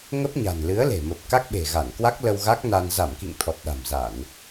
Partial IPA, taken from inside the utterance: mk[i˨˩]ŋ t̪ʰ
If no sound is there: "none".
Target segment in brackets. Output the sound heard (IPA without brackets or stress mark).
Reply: ḭ˧˨